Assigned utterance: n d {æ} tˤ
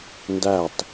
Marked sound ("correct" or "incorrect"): correct